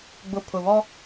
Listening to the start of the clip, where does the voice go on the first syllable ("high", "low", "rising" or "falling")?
low